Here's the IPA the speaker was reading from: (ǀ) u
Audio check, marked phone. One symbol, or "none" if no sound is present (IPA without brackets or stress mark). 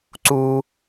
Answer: ǀ